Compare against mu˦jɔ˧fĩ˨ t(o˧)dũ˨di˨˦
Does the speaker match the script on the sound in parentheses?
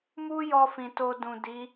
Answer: yes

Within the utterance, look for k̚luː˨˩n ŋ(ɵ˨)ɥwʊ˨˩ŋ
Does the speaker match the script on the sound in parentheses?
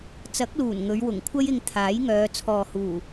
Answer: no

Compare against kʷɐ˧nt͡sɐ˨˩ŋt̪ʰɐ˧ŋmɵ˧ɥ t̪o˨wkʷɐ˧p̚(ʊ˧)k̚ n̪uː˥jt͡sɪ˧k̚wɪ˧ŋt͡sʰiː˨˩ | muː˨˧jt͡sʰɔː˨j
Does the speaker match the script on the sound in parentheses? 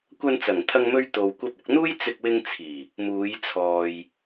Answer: yes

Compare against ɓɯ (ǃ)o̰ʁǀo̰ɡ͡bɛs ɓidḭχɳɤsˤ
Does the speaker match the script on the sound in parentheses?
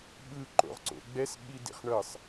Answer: yes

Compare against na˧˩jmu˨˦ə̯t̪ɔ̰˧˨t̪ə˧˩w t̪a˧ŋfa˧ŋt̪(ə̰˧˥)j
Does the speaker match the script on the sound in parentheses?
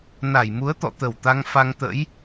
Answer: yes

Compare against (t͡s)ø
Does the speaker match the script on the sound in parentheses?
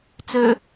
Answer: yes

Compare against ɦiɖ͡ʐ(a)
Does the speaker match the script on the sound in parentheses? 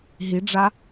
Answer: yes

